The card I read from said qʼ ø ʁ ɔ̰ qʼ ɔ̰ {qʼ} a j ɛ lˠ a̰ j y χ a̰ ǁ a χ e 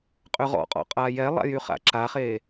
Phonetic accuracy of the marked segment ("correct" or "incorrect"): correct